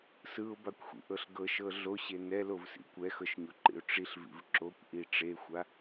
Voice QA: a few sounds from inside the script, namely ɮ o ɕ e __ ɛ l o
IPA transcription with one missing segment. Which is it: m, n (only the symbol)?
n